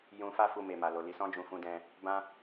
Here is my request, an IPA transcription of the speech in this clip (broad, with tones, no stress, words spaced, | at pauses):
jũ˧fa˦fu˧me˨ ma˨lo˨ li˧sɔ̃˦d͡ʒũ˧ fũ˧dɛ̃˧ | bã˦